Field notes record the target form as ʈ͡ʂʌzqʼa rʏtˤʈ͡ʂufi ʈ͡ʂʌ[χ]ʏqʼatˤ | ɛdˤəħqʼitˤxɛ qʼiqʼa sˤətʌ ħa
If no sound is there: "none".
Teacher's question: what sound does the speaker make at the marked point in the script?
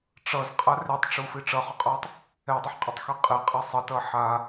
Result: χ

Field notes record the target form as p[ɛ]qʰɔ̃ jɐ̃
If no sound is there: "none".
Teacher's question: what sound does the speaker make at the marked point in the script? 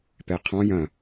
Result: ɛ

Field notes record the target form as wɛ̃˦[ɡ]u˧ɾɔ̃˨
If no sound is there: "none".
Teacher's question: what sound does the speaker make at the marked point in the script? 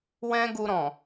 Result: ɡ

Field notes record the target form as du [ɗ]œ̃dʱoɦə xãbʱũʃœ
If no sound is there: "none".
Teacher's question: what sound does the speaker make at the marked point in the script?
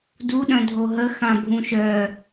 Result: ɗ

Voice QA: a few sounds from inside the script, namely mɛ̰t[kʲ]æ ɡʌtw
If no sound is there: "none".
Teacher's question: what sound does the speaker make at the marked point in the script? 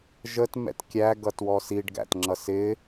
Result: kʲ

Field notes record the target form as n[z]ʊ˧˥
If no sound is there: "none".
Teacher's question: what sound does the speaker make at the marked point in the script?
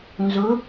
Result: z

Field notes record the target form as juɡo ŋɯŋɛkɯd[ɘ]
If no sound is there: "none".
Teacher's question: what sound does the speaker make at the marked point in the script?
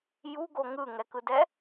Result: ɛ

